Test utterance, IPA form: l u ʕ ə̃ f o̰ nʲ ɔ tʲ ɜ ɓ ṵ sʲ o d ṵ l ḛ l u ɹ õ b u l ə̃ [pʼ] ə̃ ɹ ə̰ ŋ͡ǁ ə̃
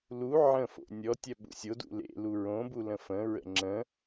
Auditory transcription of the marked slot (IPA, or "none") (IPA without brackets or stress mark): f